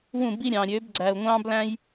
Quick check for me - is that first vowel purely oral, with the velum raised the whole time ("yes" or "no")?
no